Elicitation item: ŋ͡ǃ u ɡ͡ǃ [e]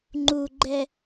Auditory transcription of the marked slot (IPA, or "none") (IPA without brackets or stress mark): ɛ